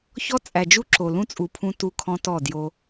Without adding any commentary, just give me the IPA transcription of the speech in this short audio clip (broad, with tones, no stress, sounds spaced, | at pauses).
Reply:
ç ɔ˦ t͡sʼ æ˨ d͡ʒ u˦ ǁ o˨ l ũ˦ t͡sʼ u˨ pʰ ũ˦ t u˦ kʰ ɔ̃˦ t ɔ˦˨ d j o˦